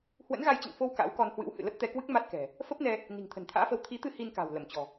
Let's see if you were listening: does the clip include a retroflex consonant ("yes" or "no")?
no